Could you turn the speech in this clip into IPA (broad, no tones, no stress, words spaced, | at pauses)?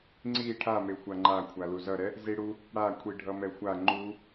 ŋ͡ǀi ʈʰame xʷaŋ͡ǃa kʷʰaluzʌɾɛ | ziɽu | ɽakʷʰi ɖʱʌmɛxʷa ŋ͡ǃu